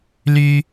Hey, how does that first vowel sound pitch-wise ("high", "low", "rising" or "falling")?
high